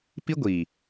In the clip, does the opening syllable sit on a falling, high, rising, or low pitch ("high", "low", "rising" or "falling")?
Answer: high